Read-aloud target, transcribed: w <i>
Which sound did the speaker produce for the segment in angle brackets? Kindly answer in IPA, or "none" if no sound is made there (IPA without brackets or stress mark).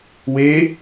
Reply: e